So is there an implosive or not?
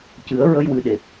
yes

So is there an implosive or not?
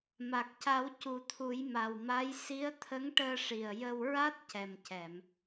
no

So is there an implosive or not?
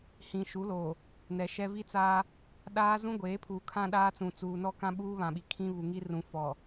yes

